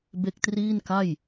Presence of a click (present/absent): absent